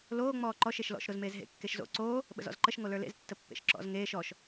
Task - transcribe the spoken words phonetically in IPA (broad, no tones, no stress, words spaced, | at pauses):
loː ŋ͡mɔːǃɔʃ eʃlɔ̰ʃ ɾozmeːzɦḛ kːeʃzo̰ ǀoː | ɓə̰zɔ̰zǃəʃ ŋolə˞lḛz tːəpːḛʃǁɔ̰z ŋeːʃ ɔʃ